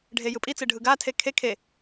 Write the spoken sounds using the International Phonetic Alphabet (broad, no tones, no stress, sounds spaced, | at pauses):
ɖʱ e j ɯ pʼ i t͡s e ɖʱ ɯ ɡ a tʰ e kʰ e kʰ e